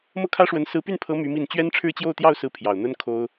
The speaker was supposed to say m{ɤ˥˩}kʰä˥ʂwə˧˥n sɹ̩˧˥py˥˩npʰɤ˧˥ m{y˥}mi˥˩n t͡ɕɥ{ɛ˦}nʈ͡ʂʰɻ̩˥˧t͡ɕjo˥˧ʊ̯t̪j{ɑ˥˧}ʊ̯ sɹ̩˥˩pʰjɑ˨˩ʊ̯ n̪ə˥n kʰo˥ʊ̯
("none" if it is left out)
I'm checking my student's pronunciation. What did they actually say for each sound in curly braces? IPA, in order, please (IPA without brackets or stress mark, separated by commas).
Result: ɤ˥˩, y˧˥, ɛ˥, ɑ˥˧